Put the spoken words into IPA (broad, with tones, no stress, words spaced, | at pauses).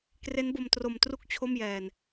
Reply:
kre˦˥nbo˧mtro˧m tru˥˩k̚t͡ɕʰo˥˩mjɛː˧n